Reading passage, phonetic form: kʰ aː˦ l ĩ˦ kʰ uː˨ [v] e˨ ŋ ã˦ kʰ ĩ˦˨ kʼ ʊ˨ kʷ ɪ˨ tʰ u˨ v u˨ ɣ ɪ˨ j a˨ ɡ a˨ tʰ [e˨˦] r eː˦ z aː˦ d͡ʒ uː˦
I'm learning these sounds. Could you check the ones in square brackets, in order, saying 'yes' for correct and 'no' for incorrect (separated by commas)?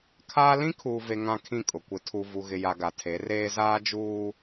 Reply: yes, yes